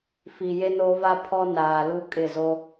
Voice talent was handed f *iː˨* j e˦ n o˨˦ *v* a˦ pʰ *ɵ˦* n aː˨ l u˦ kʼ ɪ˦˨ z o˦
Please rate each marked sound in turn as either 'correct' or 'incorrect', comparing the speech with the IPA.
incorrect: i˨, correct, incorrect: ɔ˦

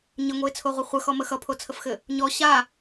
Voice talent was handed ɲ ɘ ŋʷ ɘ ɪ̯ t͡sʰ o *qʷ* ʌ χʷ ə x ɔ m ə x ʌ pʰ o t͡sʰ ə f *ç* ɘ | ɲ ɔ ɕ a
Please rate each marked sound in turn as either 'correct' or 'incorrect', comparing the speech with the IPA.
incorrect: ʁʷ, incorrect: x

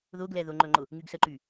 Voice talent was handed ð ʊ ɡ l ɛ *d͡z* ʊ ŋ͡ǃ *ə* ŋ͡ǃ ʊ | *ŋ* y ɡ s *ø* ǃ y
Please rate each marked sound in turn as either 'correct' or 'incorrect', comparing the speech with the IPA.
incorrect: ð, incorrect: ɵ, correct, incorrect: ə

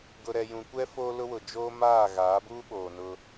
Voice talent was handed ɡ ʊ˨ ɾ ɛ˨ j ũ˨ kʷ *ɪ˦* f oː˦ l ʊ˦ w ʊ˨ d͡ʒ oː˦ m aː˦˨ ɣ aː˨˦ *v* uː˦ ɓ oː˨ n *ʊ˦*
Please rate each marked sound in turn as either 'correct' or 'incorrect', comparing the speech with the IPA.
incorrect: ɛ˦, incorrect: b, correct

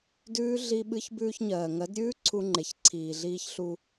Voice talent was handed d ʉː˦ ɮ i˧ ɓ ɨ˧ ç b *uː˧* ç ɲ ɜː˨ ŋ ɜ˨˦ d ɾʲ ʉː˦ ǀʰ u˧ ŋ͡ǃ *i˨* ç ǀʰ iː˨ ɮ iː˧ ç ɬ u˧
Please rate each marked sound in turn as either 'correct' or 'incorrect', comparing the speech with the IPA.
incorrect: ʉː˧, incorrect: e˨

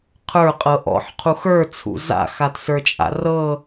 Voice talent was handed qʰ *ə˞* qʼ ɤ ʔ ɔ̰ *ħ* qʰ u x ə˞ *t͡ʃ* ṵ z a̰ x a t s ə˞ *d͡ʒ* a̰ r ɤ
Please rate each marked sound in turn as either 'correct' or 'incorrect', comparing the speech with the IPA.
correct, correct, incorrect: t͡sʰ, incorrect: t͡ʃʼ

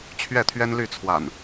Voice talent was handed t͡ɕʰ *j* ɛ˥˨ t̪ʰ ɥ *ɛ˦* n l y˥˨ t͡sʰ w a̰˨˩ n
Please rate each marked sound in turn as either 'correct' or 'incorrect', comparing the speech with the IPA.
incorrect: ɥ, correct

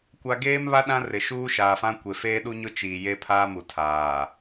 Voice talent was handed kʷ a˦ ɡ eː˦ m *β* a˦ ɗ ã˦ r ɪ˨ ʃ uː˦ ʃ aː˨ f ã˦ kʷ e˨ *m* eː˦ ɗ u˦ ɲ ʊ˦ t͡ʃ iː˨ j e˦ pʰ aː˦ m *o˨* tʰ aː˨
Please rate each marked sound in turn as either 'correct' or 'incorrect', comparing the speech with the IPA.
correct, incorrect: f, incorrect: u˨

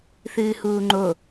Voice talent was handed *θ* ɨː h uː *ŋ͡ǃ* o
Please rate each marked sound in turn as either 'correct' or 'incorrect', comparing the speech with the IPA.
correct, correct

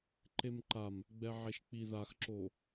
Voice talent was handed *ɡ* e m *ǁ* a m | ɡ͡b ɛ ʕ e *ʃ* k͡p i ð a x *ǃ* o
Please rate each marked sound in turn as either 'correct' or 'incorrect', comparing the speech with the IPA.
incorrect: ǃ, incorrect: ǃ, correct, incorrect: ǁ

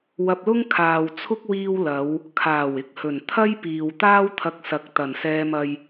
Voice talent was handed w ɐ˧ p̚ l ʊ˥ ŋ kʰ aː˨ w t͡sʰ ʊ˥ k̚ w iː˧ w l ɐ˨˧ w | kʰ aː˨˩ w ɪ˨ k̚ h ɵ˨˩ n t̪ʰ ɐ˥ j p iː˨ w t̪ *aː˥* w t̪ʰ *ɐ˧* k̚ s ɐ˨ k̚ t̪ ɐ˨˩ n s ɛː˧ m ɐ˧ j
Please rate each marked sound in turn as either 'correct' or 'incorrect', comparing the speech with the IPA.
correct, correct

